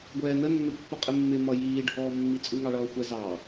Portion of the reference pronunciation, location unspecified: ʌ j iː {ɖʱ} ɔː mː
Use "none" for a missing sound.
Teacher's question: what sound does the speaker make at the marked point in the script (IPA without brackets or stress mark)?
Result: ɖʱ